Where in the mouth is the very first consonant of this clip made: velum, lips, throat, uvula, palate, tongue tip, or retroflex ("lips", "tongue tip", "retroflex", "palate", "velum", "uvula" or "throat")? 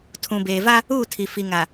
tongue tip